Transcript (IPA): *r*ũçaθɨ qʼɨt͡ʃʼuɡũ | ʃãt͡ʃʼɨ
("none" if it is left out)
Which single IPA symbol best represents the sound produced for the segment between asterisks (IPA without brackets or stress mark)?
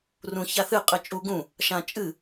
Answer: r